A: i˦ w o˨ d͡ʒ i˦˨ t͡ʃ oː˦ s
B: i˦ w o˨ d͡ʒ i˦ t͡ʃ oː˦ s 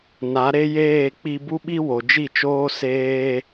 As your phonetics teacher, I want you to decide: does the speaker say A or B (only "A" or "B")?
A